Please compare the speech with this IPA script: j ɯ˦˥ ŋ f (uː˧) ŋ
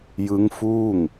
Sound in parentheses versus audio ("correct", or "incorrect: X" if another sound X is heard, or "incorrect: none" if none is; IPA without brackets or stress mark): incorrect: uː˥˩